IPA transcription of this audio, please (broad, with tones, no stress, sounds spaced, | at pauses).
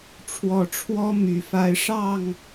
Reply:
ʈ͡ʂʰ w ɔ˨˩ ʈ͡ʂʰ w ɔ˦ m y˨˦ f a˦ ɪ̯ ʂ ɑ˥˨ ŋ